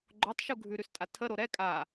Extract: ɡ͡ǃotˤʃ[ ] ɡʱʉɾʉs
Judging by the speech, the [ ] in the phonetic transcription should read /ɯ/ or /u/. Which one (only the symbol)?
u